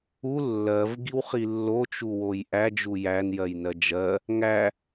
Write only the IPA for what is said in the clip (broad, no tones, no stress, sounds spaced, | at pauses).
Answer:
u lː ɜ v ɡ i w χ i lː o t͡ʃ u w o j ʔ æ d͡ʒ u j æ n j ɜ j n ɜ d͡ʒ ɜ | ŋ æ